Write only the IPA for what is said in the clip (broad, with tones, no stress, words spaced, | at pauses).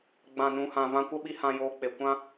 ɡ͡bã˨nũ˨hã˨ vã˧kʷə˦ɓi˧ hã˧joː˧k͡pe˨ kʷã˦